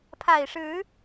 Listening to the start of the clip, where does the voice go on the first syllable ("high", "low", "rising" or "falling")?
low